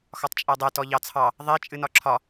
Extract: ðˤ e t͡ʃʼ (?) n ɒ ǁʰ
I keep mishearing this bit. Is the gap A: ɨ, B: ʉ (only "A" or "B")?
A